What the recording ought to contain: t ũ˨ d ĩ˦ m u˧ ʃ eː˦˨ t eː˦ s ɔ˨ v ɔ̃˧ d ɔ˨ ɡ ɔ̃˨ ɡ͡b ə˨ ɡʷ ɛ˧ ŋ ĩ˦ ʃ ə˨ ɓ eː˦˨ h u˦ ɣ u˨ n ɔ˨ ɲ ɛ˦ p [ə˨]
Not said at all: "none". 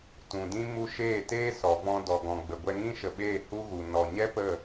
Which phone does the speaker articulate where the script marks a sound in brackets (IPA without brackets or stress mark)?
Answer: ə˦˨